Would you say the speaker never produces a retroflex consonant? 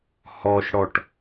no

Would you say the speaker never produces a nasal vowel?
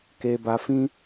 no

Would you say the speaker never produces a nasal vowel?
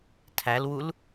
yes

